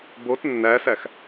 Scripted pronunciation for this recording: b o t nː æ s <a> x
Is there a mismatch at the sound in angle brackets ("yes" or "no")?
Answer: yes